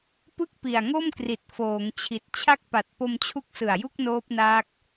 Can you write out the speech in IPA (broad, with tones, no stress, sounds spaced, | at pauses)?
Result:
p ɯ˥˩ k̚ p i˨˩ a̯ ŋ o˥˩ m k r i˨˩ t̚ f oː˩˦ ŋ t͡ɕʰ i˨˩ t̚ t͡ɕʰ a˦˥ k̚ p a˨˩ t̚ p o˧ m t͡ɕʰ u˦˥ k̚ s ɯ˨˩ a̯ j u˥˩ k̚ n oː˦˥ p̚ n aː˦˥ k̚